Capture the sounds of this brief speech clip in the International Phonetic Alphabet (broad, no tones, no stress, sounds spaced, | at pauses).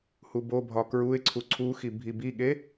h u b o bʱ ɒ k ɹ u ɪ̯ ǀʰ u ǀʰ u x i bʱ i b i ɠ e